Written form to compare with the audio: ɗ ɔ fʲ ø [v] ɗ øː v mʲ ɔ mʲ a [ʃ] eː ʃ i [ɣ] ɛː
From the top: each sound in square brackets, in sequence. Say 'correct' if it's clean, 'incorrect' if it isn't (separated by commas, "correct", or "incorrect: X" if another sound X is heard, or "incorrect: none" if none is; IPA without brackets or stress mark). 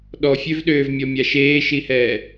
correct, correct, incorrect: h